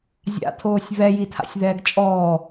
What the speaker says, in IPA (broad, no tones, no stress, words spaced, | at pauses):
zʲa̰tʰoːsʲ βɛjitʰa̰sʲðɛːɡ t͡ʃʼɔː